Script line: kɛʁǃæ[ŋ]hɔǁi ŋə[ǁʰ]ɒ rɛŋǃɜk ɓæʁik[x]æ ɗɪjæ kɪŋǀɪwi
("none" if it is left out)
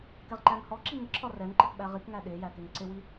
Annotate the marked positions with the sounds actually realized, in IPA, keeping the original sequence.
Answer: ŋ, ǁʰ, ŋ

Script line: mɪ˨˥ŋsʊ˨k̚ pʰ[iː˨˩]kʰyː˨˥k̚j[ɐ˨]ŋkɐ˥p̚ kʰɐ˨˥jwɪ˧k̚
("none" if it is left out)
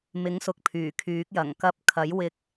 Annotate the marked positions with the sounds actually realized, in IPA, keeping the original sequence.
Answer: yː˨˩, ɐ˨˩

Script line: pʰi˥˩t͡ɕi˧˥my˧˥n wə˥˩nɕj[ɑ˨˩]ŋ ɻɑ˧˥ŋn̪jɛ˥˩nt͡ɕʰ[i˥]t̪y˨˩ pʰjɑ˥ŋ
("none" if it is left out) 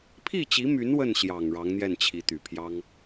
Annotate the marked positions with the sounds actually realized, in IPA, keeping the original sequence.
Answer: ɑ˨˩, i˧˥

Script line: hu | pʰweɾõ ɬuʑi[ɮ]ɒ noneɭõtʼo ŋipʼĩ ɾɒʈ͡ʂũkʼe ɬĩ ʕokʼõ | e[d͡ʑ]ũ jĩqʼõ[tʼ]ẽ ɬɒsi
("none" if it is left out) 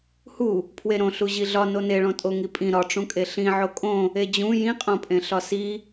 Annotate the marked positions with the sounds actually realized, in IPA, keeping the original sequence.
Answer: ɮ, d͡ʑ, pʼ

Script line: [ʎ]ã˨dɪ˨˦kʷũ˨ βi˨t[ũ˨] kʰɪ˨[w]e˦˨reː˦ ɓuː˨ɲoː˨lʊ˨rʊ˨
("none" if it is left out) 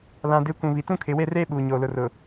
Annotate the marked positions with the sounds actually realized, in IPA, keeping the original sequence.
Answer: l, ũ˦, w

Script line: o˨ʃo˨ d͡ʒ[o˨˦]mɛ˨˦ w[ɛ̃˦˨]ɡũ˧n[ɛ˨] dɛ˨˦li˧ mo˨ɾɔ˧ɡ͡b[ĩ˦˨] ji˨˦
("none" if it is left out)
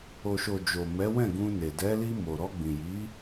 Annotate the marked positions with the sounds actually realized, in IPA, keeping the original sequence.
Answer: o˨, ɛ̃˦˨, e˨, ĩ˨

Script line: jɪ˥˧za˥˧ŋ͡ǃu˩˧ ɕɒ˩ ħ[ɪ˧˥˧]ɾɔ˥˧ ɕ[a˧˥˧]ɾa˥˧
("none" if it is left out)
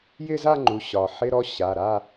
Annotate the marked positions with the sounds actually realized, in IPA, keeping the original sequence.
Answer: ɪ˧˥˧, a˩˧˩

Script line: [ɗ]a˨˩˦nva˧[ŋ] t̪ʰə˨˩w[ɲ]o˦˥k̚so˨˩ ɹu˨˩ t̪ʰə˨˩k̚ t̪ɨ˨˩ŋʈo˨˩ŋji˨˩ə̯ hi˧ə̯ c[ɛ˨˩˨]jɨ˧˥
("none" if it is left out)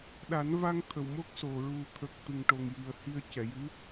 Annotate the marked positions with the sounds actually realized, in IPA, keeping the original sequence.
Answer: ɗ, ŋ, m, ɛ˨˩˨

